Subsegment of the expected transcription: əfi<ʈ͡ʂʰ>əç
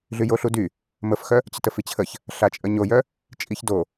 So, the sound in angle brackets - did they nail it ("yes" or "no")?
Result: no